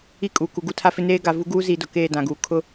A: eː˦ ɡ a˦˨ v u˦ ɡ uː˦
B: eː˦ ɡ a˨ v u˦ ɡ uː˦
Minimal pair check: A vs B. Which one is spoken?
B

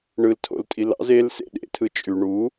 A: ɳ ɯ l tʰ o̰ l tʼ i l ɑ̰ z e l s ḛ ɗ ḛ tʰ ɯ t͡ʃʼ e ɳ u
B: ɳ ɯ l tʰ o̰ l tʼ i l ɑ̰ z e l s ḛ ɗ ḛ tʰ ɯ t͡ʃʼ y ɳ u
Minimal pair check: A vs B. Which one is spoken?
B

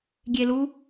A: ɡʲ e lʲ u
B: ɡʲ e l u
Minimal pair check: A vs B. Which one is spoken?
B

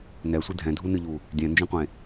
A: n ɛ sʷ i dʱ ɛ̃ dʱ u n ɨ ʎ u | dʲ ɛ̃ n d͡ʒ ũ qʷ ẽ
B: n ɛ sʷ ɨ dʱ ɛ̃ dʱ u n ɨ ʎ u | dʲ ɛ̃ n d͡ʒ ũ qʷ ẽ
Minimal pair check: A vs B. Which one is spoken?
B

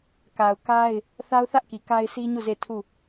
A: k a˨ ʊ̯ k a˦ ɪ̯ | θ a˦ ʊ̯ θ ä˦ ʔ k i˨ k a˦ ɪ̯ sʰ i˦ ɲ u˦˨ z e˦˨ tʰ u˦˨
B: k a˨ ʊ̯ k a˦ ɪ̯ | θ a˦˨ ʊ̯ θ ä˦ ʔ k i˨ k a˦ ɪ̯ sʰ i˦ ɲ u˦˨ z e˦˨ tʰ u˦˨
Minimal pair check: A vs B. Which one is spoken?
A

